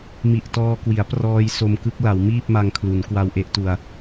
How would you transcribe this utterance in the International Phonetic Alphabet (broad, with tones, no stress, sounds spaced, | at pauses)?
m i˨˩ ʔ t ɔː˧ k w i˩˦ a̯ p r ɔː˧ j s o˧ m k ɯ˦˥ k̚ l a˩˦ w m iː˥˩ p̚ m a˧ ŋ kʰ l u˩˦ n k w a˧ w ʔ e˥˩ ʔ t u˧ a̯